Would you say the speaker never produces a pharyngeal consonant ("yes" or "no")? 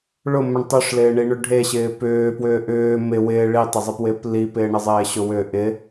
yes